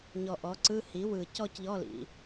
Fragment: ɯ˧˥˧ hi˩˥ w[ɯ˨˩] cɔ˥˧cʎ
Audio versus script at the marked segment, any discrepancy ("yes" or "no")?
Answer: no